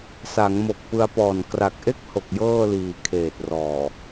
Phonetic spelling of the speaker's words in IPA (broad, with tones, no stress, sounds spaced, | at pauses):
s a˩˦ ŋ m o˨˩ k̚ p ɯ˧ a̯ p ɔː˨˩ n k r a˨˩ k̚ ʔ e˥˩ k̚ h o˨˩ k̚ j ɤː˥˩ l iː˨˩ kʰ eː˨˩ t̚ r ɔː˨˩